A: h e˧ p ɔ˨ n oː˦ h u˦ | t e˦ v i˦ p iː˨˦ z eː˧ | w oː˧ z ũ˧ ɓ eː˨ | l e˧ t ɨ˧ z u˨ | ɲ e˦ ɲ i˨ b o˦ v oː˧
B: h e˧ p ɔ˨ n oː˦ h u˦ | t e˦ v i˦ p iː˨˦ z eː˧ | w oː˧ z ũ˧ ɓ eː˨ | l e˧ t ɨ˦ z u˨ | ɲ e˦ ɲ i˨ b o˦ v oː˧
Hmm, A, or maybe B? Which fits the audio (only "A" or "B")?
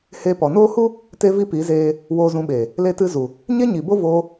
A